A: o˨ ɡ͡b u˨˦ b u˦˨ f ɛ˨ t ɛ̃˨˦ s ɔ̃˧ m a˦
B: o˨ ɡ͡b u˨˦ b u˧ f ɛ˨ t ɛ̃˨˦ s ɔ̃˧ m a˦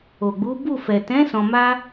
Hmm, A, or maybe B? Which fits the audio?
A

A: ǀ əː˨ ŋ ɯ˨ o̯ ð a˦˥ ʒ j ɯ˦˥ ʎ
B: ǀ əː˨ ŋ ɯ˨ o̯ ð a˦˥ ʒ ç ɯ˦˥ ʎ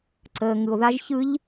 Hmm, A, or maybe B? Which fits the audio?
B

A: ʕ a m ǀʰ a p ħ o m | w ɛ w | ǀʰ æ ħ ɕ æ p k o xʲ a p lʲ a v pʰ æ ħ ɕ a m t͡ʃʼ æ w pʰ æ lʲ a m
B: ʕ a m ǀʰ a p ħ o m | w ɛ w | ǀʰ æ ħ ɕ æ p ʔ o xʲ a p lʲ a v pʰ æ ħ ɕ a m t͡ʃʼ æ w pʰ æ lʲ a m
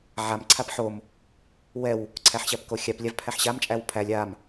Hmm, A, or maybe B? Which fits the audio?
A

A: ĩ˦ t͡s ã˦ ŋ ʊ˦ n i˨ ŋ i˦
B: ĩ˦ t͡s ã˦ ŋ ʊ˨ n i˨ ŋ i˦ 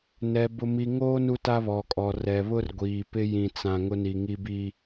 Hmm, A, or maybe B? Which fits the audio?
A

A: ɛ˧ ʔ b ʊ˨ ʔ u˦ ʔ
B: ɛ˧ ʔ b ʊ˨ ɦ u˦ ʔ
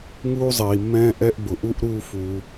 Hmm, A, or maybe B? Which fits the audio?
A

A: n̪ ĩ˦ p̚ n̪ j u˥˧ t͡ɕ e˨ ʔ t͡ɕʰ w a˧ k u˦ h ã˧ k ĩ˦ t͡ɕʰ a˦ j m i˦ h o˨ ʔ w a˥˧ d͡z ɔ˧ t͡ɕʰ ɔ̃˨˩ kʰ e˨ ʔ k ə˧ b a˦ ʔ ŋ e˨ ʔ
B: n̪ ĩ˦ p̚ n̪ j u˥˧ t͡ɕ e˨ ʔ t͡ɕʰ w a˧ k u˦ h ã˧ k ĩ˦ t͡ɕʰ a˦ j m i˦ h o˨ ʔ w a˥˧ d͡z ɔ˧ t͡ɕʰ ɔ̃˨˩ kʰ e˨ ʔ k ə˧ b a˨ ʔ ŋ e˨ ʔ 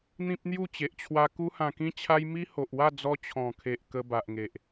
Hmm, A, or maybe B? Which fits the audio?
B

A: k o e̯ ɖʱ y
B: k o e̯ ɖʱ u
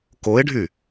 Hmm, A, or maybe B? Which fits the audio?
A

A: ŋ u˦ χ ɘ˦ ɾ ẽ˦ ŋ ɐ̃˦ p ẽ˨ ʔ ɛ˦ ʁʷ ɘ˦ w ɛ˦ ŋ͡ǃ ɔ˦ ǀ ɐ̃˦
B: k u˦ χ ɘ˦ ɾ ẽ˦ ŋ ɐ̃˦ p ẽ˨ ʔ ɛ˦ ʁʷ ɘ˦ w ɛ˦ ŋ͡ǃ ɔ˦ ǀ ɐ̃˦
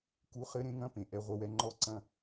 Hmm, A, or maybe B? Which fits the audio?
B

